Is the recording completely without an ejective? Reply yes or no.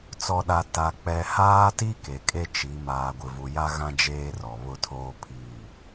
no